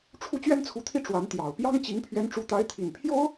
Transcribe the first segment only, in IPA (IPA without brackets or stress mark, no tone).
ʈ͡ʂʰ